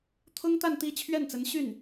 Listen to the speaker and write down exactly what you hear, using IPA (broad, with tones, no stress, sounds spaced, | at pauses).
t̪ʰ ʊ˥ ŋ t̪ a˥˧ n t̪ i˥˧ t͡ɕʰ ɥ ɛ˥˩ n t͡s ə˧˥ n ɕ y˥˩ n